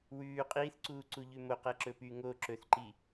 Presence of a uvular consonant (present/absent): present